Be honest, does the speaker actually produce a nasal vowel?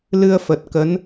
no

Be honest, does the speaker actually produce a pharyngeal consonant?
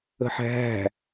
yes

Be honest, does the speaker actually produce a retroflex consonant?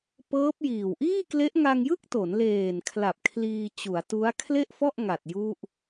no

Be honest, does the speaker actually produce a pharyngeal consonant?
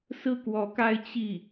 no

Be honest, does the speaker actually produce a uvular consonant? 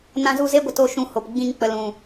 no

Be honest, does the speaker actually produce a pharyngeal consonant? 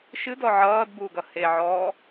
yes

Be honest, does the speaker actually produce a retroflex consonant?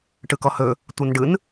yes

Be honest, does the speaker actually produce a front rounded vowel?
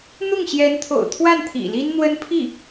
no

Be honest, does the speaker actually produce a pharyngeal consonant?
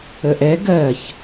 no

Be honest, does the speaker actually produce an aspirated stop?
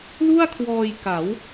yes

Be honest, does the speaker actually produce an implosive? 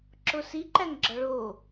no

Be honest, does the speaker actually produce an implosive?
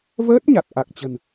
no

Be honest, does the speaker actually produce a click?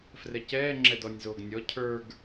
yes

